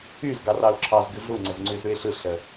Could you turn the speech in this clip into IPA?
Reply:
yz ɡɑrɑʊ̯ǁʰɑzɡʉ ɮuŋ͡ǀəzŋ͡ǀʉz ɾʉɪ̯ɬɯɬə

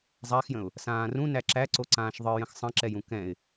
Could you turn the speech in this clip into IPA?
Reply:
zˤaxjə̃ʊ̯ | sãːrũ næǁæǀoǀãːʃ ðˤɨ jə̃xsˤə̃ǁɛjũ kɛ̃ɪ̯

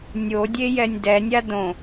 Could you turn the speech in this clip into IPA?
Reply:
nʲodʲe jɛnʲdɛnʲa dõ

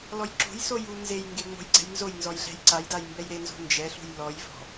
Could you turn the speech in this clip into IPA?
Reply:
lɔjǁo̤jsoj unzejŋɡe ŋ͡mo̤jɡ͡ǀɛ̤jnzojnzɔj ɮɛ̤jǀajdaj mbɛjɾenzo̤ nd͡ʒɛɬṳj lɔjvɔ̤

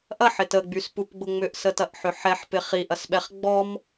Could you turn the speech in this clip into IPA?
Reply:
ʔɐħɪt əɡ͡byspupɡ͡bʊ ŋ͡mʏʔsətɐʔħʏ ħɛħpɪ χiʔɐsɓɛχ ɡ͡bɔm

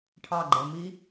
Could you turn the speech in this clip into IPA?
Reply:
ʈʰɑɡ͡ǃɛ mi

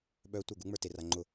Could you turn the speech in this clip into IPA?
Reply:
ɓœ tʷə˞ɡuŋ͡mə˞ teraŋ͡ǃʊ

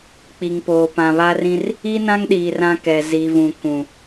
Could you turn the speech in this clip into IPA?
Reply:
k͡pi˨ŋ poː˨pã˨βa˦rĩ˦r | i˦nã˦ŋɗiː˨r ã˦kɛ˨ zi˨vũ˨ kũ˨

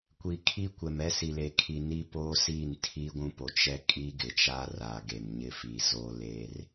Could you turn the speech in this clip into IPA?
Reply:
kʷi˨kʰi˦kʷɛ˨m ɛ˦si˨le˨kʰi˨ ni˦poː˦ siː˦˨ntʰiː˦ɡʷũ˦po˨ t͡ʃɛ˦ kʼi˦ɡɪ˨t͡ʃa˦ raː˨ɡe˨m ɲɪ˦fi˨ zo˦le˦r

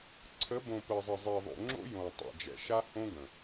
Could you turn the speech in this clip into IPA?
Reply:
ǀʰə˨˦bõ˨ pə˨zˤə˨zˤi˨ ðˤo̰˨ŋ͡ǁo̰˦ jõ˨tˤɛ̰˨d͡ʒɛ̰˨ ʃa˦ hõ˦ɡə̃˨

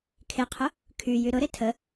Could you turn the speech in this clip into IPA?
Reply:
kʰeqʰʊ | kʰyjy ɾʊɾe tʰə

